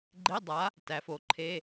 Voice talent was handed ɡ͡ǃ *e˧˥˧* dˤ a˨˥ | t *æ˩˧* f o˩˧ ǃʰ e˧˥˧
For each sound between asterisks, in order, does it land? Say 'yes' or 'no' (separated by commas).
yes, yes